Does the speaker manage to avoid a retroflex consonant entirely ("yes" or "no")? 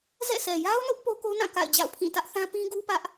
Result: yes